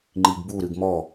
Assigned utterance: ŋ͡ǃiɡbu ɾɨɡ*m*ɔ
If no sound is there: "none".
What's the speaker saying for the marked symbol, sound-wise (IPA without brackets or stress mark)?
m